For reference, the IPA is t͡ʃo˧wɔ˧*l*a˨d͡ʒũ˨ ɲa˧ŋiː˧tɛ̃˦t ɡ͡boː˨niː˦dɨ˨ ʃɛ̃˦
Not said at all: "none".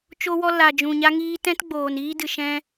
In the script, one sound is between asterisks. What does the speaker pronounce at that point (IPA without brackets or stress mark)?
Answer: l